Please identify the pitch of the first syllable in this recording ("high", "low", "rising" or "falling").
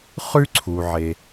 high